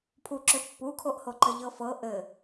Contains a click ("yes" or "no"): yes